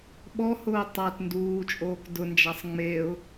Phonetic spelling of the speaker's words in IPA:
ɓɔhʊː tˤat nduːt͡ʃʼoːk dʊnd͡ʒasˤ ŋ͡meʊ̯

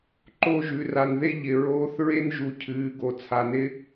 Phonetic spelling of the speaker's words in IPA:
ǃo˦˨ʒʉ˨ra˨nðe˦ ʎɪ˨ɹoː˦θ ɹe˦nʒu˨ cʰɨː˨˦ɡo˨ t͡sʰa˨nɪ˦

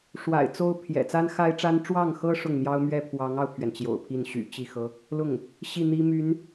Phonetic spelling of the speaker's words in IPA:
ʂwa̰˨˩ɪ̯t͡so˥ʊ̯pʰjɛ̰˨˩ t͡sa˥nxa˥ɪ̯ʈ͡ʂa˥n ʈ͡ʂwɑ˥˩ŋxɤ˥ ʂʊ˥˩ŋn̪jɑ˥ʊ̯mɥɛ˥ pʰwɑ˧˥ŋɑ˧ʊ̯pʰɥɛ˩n t͡ɕjo̰˨˩ʊ̯pʰi˥˩n ɕy̰˨˩ t͡ɕi˥˩xɤ˥ | lʊ˥˩ŋ | ɕi˥˩n̪i˥my˧˥n

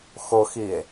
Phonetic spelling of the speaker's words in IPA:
xoxie̯

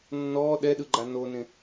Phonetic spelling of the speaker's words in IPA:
nːɔː ɗɛɗɯɡ͡ǃa nonẽ

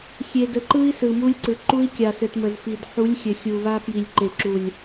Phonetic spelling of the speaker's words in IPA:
xʲe˨də˨ǃɯ˦i̯ sɯ˨mu˦lʲǀɯ˨ ǃu˦i̯kʲa˨sɘ˨t mə˨zfi˨d ħu˨˦lʲ xʲɘ˨ xʲu˨βa˦ pji˨lʲǃe˨ǁu˨lʲ

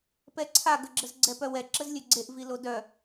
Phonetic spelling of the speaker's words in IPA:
pɛǀʰaɡəɡ͡ǁəz ɡ͡ǀɛpœwɛ ǁəzlʲøɡ͡ǀeʔ vilodœ

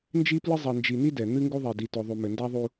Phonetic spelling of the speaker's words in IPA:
nd͡ʒi˦plɨ˦ zˤɛ˨nd͡ʒi˨n̪i˦ dɛ˨ n̪ɨ˦ ŋɡu˦ðˤi˨di˨ to˨ðˤu˨mɘ˨nda˦ ðˤu˦

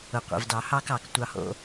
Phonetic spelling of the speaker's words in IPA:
ʊ˩qʷɛ̰˩vdɑ˩ hɑ˦k ɑ˩k tʷɑ˨ho̰˨

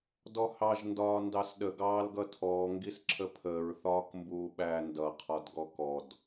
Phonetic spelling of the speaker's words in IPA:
dɔhɑʒ ndɒːndɑsɗə ɡɑːlɡʌtʰɔː ŋɡisǁʰəpʰəːɹ θɒːkmbuːɓæːndʌ qʰɒdɡɔkɔd

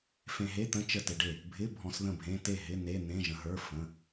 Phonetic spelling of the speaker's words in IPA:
fẽ˧ɦe˧˥˧t̪ə̃˧˥˧ t͡ʃə˥˩tɪ˧ɖe˥˩ | bʱɪ˧˥˧ bʱɔ̃˧sðə̃˥˩bʱẽ˧˥˧ te˥˩ɦɪ˧˥˧ ne˧˥˧ n̪ẽ˧˥˧ʒə̃˧ɦə˞˧˥˧ fə̃˧˥˧

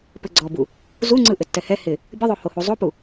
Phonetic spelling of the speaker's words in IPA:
pɘɡ͡ǀɔbu | zuŋ͡ǀɯ ʔɘtːɛhɛ hɪ | bʲəðˤo hohu zˤopu

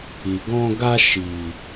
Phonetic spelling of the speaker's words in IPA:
i˨ ɡɔ̃˧ɡa˧ ʃi˨

